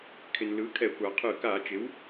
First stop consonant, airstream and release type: aspirated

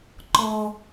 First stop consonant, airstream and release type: click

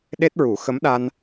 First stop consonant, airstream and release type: implosive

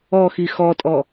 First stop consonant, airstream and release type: ejective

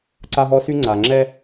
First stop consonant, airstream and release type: click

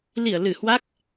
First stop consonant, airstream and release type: plain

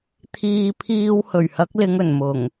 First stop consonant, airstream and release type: aspirated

